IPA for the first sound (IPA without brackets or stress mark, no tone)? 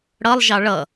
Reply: ɽ